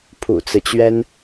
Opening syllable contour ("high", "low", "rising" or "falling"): low